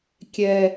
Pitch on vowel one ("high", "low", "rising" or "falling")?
high